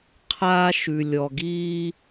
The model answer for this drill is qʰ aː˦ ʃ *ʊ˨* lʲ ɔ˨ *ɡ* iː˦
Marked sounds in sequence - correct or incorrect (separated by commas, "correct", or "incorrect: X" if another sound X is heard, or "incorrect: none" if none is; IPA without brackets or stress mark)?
incorrect: ʉ˨, correct